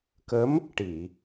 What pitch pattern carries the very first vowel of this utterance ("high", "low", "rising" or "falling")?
rising